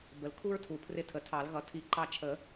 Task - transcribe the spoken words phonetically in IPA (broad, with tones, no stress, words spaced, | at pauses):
bə˩lkʰu˥ɹtʰu˩ pʰrɪ˦˨tʰə˩˧˩tʰɑ˨˩˦lɣʌ˨˩˦ tʰi˨˩˦ ǃɑ˦˨t͡ʃʰə˨˩˦